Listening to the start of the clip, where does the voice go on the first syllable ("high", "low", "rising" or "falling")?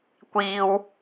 high